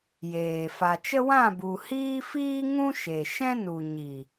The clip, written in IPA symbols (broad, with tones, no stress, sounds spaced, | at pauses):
j eː˨ f a˨ t͡ʃ ə˦ w ã˦˨ b u˨ h iː˦ f iː˦ ŋ ũ˦ ʃ e˨ ʃ ɛ̃˦ n u˨ ɲ i˨